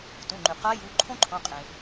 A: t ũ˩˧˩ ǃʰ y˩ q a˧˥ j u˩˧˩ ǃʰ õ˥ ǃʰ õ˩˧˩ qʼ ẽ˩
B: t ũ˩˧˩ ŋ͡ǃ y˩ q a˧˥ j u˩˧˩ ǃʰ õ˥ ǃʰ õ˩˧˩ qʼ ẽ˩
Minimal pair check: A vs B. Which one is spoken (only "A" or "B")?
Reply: B